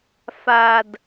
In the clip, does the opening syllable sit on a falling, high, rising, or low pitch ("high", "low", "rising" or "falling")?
low